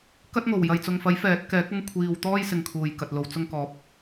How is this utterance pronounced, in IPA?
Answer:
k ɐ˥ t̚ ŋ o˨˩ w j ɐ˨ j t͡s ʊ˨ ŋ f ɐ˨˥ j f ɛː˨˥ t̚ k ɛː˨˥ k̚ ʊ˥ ŋ kʷʰ iː˨ w t̪ ɔː˥ j s ɪ˧ ŋ kʰ uː˨ j k ɐ˨ t̚ l o˧ w t͡s ʊ˧ ŋ k ɔː˨˥ p̚

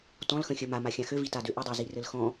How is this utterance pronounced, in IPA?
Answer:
t ɔ̃ l x ə̃ xʲ ə m a m a xʲ ã x ø v i t a d ø ʔ ɘ dˤ a z i r ɘ l x ɔ̃

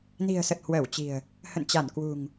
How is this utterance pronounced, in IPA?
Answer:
n i̤˨˩ ə̯ s ə˨˩ t̚ h w əː˧˩ w t͡ɕ i̤˨˩ ə̯ | h ə̰˧˨ n t͡ɕ a˧˩ n k w ṳ˨˩ ŋ

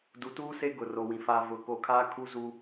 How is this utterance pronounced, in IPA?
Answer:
d u˨ t uː˦ s e˦ ɡ ʊ˨ r o˨ w ĩ˨ f a˨ v ʊ˨ k o˨ kʰ aː˦ kʰ u˦ z u˦

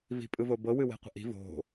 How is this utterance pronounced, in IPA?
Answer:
v i̤ pʼ ɯ v o b ɤ w ɨ w e̤ qʷ ə̤ ʔ i̤ v o̤

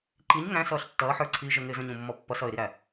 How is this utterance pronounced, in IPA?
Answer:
ǃ i ɲ ŋ æ̃ s ʌː ɬ tː ʌː ħ ə˞ ǀʰ iː ʒ ə ŋ ɪː z ə̃ ɲ ũ mː ɔ pː ʌ s ʌ ɪ̯ ɾ i ɾ æ

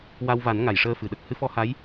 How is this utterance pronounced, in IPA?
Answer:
w a˧ w v a˨˩˦ n ŋ a˨˩˨ j ʂ əː˧ f ɨ˨˩˨ ɗ ə˦˥ k̚ h ɨ˧˥ f ɔ˧˥ h a˧˥ j

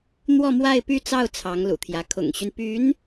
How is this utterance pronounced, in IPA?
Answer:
n̪ w ɔ˥˧ m w a˥˧ ɪ̯ p y˥˧ t͡s ɑ˥˩ ʊ̯ t͡sʰ ɑ˧˥ ŋ l ṵ˨˩ t̪ʰ j ä˧˥ kʰ ʊ̰˨˩ ŋ ɕ y˦ n p y˧˥ n

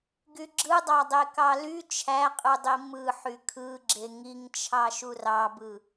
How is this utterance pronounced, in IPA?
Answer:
ɡ y ɡ͡ǁ ɯ dˤ ɑ dˤ e k ɑ l y t͡ʃʰ æ qʼ ɯ dˤ i m ɯ ħ y kʰ ɯ ɡ͡ǁ e ŋ i ŋ t͡ʃʰ ɑ ʃ u r ɑ b ɯ

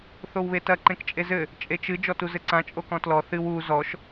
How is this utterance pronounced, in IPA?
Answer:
θ o w β e t ɐ ǃ ẽ k t͡ʃʼ e z ɘ | t͡ʃʼ e t͡ʃ ɨ d͡ʒ ɔ t u z ɘ ǀ ã t͡ʃʼ o k ɔ̃ t l ɔ θ ɨ w u z ɔ ʃ

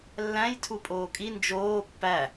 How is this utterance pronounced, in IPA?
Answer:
lː æ̃ j tʰ u pʼ oː kʼ i n d͡ʒ oː pː æ

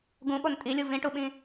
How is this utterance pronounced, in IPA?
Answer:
ɡ ũ ɓ o n tʼ i lʲ u v ĩ ʈ u ɓ ĩ

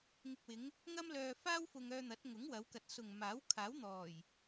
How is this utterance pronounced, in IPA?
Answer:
ŋ ɪ˨ k̚ w ɪ˨˧ ŋ | ŋ ɐ˥ m l œː˧ f aː˥ w f ʊ˧ ŋ œː˧ n̪ ɐ˨˥ t̚ ŋ ʊ˨˥ ŋ w ɐ˨˧ w k ɐ˨ t̚ s ʊ˨ ŋ m aː˨˥ w kʰ aː˨˥ w n̪ ɔː˨˩ j

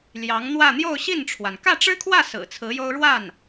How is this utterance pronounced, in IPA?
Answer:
l j ɑ˧˥ ŋ n̪ w ä˥˧ n̪ j o˥˧ ʊ̯ ɕ i˥˩ n ʈ͡ʂʰ w a˩ n k ä˥˩ ʈ͡ʂ ɻ̩˥ kʰ w ä˥˩ s ɹ̩˨˩ t͡sʰ ɹ̩˧˥ j o˥ ʊ̯ ɻ w a˥˩ n

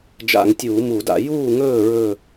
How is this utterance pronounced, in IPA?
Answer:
d͡ʒ a̰˧˩˧ ŋ tʲ uː˧˩˧ m u˧˩˧ d a̰˧˩˧ j uː˥˨ ŋ ɵː˥˨ ɹ ɵ˥˨

